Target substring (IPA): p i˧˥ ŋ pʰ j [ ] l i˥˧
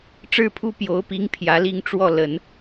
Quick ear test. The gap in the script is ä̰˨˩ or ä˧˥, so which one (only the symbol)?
ä˧˥